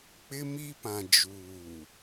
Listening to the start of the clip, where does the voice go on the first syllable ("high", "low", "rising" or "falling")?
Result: high